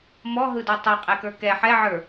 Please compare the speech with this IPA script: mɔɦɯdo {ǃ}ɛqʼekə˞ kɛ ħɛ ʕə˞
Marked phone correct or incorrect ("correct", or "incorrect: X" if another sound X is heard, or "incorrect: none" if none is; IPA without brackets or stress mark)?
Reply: incorrect: tˤ